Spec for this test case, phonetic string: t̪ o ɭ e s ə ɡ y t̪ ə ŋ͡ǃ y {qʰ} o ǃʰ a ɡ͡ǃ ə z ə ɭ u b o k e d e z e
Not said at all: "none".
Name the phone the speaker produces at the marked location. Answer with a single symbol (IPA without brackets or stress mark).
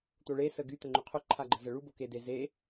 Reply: qʰ